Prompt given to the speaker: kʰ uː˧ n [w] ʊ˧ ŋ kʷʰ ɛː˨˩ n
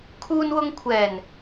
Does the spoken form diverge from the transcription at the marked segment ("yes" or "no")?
no